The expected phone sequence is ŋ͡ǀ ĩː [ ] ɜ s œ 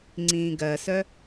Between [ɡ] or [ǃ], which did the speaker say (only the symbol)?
ɡ